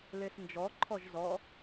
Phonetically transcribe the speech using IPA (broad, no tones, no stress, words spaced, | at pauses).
lesnd͡ʒɔǃʰɔʒ zɔ